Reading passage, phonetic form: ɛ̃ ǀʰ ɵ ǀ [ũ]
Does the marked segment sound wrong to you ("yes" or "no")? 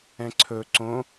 yes